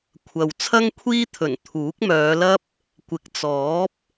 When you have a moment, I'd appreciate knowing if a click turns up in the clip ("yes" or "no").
no